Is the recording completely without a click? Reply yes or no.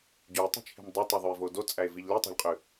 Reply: yes